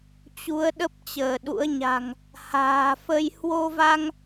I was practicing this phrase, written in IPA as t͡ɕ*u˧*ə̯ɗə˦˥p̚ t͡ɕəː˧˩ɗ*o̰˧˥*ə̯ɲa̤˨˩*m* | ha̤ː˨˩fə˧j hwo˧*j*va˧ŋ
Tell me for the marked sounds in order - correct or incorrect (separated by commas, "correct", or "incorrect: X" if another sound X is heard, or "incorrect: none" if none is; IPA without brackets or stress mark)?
incorrect: u˨˦, incorrect: ṵ˧˥, incorrect: ŋ, incorrect: none